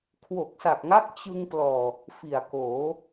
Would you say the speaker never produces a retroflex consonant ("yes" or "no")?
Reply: yes